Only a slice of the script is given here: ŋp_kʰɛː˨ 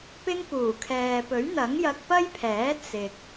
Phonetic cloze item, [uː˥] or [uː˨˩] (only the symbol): uː˨˩